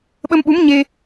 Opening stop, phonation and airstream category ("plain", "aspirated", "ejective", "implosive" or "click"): implosive